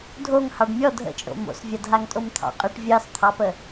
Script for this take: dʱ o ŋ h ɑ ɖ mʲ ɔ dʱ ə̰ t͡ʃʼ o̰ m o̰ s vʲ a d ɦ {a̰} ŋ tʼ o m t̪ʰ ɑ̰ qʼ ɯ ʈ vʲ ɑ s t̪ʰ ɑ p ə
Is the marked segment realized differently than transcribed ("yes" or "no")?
yes